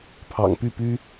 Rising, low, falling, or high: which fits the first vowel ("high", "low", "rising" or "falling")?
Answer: low